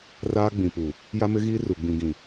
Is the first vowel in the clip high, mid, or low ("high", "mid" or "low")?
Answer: low